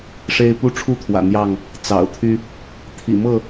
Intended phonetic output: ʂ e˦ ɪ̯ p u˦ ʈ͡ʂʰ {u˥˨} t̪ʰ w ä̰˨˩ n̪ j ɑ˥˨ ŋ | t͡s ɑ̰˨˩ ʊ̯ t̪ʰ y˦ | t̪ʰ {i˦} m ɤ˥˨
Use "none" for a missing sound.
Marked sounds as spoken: u˦, ḭ˨˩

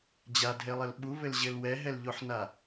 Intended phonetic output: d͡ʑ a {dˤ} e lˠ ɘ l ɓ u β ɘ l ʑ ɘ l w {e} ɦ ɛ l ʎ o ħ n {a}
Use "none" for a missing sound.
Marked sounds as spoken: dʱ, ɛ, a

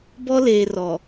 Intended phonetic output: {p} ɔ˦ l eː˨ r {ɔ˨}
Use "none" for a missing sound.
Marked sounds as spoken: b, ɔ˨

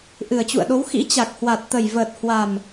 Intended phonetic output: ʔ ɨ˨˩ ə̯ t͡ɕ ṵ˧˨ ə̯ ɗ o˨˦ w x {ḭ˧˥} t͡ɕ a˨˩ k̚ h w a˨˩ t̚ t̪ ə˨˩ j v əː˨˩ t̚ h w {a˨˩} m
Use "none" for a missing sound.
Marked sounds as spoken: ḭ˧˥, a˨˩

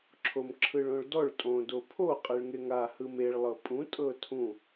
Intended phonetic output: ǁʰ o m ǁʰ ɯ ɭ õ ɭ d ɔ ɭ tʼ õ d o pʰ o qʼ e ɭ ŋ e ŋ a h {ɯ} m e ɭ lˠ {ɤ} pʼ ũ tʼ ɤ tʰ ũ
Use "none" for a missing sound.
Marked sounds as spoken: ɯ, ɤ

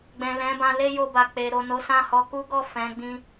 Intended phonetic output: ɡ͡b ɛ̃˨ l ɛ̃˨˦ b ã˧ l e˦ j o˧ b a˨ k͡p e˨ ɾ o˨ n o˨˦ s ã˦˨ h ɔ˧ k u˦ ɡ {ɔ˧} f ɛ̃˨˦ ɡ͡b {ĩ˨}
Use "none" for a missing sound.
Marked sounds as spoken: ɔ˦˨, ĩ˧

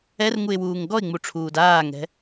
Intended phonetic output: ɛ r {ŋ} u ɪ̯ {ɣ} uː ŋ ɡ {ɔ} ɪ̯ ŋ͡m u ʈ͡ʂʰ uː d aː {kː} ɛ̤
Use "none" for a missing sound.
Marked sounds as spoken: ŋ, w, ɔ, ŋ

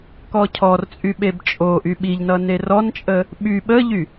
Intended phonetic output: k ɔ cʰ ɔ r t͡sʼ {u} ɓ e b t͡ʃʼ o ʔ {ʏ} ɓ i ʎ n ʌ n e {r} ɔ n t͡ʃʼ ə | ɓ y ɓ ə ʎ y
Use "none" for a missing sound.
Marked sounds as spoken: y, y, r

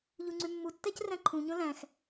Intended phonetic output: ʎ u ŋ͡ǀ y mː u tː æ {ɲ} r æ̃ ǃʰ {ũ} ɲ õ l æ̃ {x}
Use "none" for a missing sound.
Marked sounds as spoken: c, ũ, x

